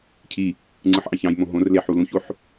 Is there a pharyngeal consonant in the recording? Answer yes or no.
yes